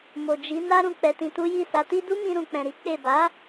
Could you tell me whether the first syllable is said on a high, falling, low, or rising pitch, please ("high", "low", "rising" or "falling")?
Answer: low